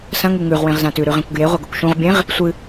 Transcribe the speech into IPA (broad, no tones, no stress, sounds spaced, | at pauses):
s ɐ̃ ŋ u ŋ ʉ ʁ w ẽ ʁ z ã t ʉ ɾ ʉ ʁ ẽ kʷ ɡ j e ʁʷ ɐ ɡ ɵ kʷ ʃ ũ ʁ bʲ ẽ ʁ | sʷ ɨ